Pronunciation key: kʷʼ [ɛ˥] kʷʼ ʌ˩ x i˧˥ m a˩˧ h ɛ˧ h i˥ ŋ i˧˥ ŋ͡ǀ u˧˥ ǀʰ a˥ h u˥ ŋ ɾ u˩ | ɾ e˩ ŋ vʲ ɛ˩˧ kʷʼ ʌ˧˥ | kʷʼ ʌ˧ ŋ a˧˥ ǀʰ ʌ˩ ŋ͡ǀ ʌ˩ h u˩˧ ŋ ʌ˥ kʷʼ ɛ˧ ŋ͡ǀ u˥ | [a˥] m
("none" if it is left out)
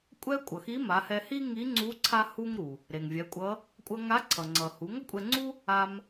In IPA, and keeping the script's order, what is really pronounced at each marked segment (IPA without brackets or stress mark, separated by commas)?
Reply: ɛ˥, a˧